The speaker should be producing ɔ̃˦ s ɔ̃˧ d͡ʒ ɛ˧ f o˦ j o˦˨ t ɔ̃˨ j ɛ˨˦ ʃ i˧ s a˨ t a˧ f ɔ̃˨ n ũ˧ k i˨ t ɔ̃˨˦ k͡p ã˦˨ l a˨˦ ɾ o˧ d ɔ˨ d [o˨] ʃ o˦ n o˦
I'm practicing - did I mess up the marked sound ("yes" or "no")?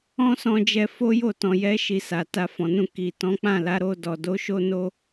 yes